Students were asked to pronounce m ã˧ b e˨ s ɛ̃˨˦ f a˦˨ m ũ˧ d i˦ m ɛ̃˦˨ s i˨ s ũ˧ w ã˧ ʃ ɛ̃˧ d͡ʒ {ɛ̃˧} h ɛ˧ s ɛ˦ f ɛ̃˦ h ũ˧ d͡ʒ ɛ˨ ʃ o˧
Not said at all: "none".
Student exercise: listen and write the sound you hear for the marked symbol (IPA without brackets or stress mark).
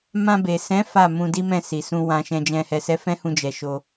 ɛ̃˧